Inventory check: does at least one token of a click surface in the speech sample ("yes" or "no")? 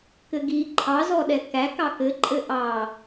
yes